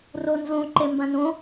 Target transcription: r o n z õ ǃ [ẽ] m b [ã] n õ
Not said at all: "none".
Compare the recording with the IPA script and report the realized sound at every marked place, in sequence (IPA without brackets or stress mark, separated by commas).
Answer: e, ã